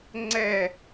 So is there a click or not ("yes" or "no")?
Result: yes